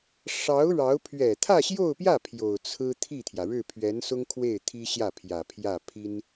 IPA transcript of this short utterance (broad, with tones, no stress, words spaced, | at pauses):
ʂɑ˧˥ʊ̯ ɻɑ˧˥ʊ̯ pʰɥɛ˨˩t̪ʰä˥˧ɕjo˥˧ʊ̯pjä˥˩ pʰjo˨˩ʊ̯ t͡sʰɹ̩˥ t̪ʰi˥˩t̪ʰjä˩ɻɻ̩˥˩ pʰɥɛ˧˥nsʊ˥ŋkʰwe˥˩ɪ̯ t̪ʰi˥ɕjä˥˩ pʰjä˨˩pʰjä˥˩ pʰi˥n